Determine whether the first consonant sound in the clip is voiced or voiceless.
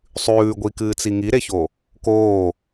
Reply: voiceless